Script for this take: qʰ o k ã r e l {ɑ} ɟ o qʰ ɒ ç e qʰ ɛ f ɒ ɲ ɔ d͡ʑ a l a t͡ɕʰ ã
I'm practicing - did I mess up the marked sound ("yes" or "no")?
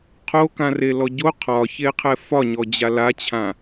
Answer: yes